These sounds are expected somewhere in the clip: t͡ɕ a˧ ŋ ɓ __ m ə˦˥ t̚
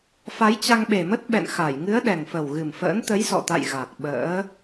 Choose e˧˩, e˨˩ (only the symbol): e˨˩